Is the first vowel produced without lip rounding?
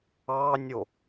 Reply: yes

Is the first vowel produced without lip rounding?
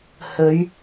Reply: no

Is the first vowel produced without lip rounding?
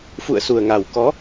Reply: no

